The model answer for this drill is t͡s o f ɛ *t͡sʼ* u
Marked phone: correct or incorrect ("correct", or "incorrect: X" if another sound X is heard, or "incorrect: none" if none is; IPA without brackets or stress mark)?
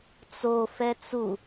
incorrect: t͡s